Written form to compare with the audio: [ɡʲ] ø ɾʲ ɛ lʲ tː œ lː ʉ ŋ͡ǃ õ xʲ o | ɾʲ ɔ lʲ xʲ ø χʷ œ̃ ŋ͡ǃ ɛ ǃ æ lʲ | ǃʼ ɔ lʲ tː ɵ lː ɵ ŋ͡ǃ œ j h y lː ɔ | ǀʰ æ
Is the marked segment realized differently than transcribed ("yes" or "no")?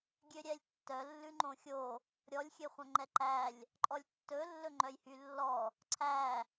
no